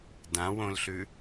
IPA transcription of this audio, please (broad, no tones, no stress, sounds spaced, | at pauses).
d ã w õ l ɬ ʉ